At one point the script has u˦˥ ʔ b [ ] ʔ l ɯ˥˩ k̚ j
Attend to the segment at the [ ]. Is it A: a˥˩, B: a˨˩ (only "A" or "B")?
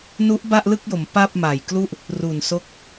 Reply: A